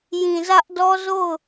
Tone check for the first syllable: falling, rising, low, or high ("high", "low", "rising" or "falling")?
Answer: low